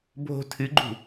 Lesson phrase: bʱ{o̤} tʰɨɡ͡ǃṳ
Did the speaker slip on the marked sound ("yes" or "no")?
no